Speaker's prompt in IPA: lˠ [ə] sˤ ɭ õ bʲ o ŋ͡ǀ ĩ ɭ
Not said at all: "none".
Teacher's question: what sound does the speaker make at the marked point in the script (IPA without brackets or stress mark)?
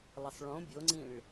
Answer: ə